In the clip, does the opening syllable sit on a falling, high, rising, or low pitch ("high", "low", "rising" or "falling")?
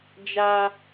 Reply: high